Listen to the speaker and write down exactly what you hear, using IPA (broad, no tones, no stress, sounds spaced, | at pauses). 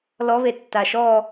l ɔ β e tː a ʃ ɔ